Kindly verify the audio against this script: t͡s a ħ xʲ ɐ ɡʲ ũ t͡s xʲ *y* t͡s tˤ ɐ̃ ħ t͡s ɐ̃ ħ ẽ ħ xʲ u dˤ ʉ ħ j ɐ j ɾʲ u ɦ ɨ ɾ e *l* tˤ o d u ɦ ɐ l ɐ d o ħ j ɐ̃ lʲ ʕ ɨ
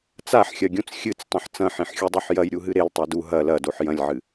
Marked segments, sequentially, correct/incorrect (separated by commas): incorrect, correct